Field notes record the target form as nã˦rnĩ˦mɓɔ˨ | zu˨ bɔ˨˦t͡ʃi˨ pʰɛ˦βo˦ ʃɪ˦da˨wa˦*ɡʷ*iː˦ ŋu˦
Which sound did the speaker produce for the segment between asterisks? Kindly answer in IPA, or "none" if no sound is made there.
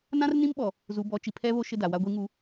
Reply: ɡʷ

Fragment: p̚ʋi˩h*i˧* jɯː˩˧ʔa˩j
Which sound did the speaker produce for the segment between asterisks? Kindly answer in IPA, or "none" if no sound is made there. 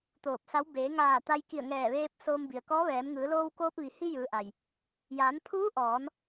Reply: i˧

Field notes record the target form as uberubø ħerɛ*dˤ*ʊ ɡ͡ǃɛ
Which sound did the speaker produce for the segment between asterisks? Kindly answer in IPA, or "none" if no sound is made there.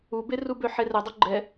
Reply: dˤ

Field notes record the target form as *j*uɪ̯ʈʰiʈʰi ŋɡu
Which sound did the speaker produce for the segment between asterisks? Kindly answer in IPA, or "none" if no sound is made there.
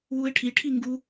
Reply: w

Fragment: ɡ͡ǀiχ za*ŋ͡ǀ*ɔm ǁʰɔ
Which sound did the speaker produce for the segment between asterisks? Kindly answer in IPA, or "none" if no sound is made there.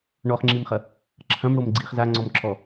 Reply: ŋ͡ǀ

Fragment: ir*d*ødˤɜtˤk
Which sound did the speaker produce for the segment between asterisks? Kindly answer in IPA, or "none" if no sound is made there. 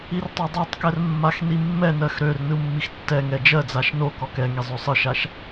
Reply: tˤ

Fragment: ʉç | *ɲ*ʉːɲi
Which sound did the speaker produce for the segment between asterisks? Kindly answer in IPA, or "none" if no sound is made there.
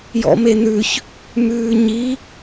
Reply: m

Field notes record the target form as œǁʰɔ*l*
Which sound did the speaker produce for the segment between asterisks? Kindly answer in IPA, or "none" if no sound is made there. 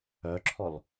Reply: l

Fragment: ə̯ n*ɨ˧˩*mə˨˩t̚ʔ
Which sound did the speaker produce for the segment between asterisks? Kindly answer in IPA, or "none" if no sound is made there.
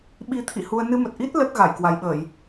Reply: ɨ˧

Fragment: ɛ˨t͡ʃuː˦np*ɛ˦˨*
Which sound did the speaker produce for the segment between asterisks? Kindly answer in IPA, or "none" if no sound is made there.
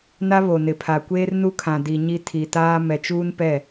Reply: ɛ˦˨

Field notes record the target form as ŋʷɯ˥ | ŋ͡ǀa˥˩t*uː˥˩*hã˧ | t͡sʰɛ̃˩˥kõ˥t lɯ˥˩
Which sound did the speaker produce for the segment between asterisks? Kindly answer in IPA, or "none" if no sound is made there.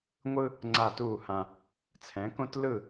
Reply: uː˥˩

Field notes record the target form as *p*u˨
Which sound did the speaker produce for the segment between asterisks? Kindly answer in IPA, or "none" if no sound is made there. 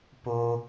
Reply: p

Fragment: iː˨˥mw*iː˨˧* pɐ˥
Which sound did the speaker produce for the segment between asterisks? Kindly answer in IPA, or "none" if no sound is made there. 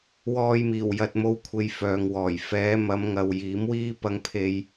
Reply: iː˥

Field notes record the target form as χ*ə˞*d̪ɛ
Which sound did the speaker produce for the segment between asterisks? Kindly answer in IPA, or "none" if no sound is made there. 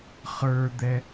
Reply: ə˞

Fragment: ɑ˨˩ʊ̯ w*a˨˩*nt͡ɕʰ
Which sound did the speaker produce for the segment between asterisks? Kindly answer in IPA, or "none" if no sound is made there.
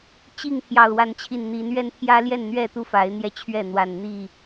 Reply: a˨˦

